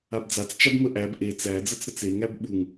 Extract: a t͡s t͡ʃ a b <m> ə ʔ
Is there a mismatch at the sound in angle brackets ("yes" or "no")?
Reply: no